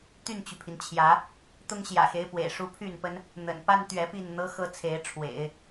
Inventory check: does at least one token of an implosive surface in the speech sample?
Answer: no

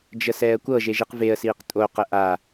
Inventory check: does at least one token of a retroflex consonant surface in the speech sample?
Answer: no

